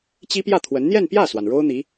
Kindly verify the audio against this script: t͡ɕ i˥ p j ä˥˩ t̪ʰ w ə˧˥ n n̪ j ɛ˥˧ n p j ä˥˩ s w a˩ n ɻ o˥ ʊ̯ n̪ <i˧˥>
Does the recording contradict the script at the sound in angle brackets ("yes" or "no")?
no